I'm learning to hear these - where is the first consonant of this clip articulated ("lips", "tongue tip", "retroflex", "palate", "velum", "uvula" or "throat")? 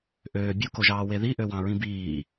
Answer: throat